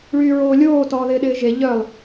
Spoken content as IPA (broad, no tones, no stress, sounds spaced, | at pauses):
ɭ yː ɹ oː lʲ oː t ɔː ð ɪː ɗ ɪː ʒ e ʎ œ lˠ